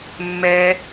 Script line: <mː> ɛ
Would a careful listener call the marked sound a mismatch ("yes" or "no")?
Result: no